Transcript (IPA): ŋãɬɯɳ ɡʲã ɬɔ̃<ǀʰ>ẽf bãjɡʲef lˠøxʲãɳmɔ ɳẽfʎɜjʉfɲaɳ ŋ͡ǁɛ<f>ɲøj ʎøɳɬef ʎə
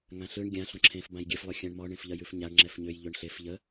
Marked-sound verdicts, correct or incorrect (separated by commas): incorrect, correct